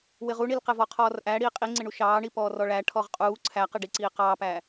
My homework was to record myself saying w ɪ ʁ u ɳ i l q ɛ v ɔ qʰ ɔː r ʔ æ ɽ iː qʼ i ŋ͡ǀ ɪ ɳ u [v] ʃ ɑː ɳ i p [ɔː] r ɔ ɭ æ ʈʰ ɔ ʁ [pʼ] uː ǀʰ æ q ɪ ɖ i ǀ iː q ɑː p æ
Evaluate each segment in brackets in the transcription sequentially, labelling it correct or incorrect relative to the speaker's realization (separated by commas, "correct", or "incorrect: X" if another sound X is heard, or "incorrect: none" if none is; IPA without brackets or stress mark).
incorrect: none, correct, incorrect: qʼ